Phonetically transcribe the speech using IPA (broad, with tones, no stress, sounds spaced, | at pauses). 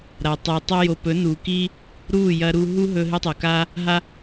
ɾ aː˨ tˤ uː˨ tˤ o˦ j o˧ p ɵ˨˦ n uː˨ k iː˦ | ɾ uː˦˨ j ɐ˦ ɾ u˦ ɦ u˦ ɦ ɵ˧ ɦ ɨ˧ tˤ oː˨ k aː˦ | ɦ a˦